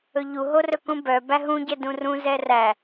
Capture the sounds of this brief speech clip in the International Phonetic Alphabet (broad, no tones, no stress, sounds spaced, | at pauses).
ɵ ʎ u ɦ o r ɵ k ũ b œ b æ ɦ ũ ɟ ɛ d ũ r ũ z ɛ r æ